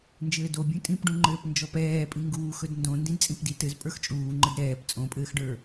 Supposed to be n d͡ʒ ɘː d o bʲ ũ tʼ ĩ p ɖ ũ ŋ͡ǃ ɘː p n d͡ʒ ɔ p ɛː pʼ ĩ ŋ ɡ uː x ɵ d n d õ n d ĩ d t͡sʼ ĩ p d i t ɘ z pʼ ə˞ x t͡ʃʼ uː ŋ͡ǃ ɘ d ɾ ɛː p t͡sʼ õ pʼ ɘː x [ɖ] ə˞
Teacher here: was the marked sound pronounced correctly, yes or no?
yes